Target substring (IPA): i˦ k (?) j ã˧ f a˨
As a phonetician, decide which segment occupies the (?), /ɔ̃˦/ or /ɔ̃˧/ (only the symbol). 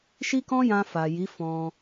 ɔ̃˦